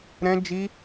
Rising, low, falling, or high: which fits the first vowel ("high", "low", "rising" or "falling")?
high